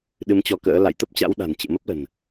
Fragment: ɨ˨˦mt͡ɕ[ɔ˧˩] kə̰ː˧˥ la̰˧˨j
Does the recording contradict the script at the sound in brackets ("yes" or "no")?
yes